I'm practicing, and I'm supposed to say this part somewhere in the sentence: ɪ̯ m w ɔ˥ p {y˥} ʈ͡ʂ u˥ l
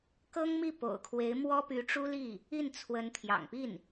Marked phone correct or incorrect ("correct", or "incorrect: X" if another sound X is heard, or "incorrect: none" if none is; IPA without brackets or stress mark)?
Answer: incorrect: y˧˥